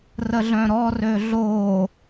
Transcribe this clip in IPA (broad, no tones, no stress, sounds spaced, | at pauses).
r ə ɮ œ̃ ɾ ɔ r ø ɮ o